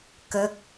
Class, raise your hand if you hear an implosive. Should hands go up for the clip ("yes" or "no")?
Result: no